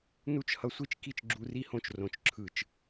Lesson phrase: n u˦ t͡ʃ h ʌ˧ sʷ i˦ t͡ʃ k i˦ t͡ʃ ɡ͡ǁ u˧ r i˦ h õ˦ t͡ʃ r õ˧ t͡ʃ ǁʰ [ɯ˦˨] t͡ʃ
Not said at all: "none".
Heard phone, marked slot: ɯ˦˨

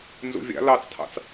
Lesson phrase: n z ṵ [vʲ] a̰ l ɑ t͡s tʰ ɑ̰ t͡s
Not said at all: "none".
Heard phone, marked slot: vʲ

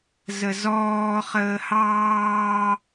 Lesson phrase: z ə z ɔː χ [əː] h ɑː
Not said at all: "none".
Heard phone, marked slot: əː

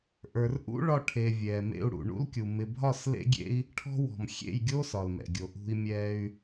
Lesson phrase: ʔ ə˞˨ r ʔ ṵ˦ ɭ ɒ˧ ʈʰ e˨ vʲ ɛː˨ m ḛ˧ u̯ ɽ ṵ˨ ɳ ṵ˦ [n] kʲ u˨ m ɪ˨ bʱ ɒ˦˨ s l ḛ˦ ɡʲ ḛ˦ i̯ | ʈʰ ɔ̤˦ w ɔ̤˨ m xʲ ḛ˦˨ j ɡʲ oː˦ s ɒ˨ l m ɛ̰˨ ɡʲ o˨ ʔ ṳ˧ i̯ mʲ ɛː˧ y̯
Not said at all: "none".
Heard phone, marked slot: l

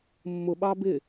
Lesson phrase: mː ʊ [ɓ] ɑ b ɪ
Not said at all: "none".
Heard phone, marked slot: ɓ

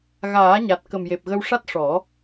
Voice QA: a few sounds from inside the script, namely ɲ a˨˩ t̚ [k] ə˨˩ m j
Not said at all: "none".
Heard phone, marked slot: k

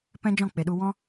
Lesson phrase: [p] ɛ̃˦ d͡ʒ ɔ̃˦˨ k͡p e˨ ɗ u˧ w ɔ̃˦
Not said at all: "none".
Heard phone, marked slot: p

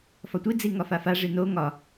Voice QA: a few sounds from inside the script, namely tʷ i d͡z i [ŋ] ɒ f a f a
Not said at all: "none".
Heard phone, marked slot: ŋ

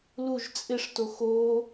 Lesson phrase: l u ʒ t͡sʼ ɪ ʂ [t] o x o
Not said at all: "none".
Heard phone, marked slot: t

